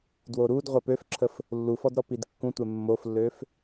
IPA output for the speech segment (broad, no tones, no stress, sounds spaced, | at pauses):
d w o ɾ u d ʁʷ a p ø f ǁʰ ə f | lː u f ɔ d ɾ ɔ p i d kː ũ tʷ ɛ mː o f lː ø f